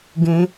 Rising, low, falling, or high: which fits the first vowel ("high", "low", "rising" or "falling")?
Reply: rising